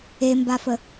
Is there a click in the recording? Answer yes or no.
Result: no